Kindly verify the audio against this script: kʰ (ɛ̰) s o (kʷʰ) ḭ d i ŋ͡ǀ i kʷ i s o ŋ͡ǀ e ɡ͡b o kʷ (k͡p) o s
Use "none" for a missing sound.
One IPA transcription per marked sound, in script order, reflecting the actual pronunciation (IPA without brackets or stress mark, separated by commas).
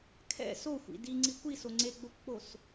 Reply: ɛ̰, xʷ, k͡p